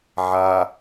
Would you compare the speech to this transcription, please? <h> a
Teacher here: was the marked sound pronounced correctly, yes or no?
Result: no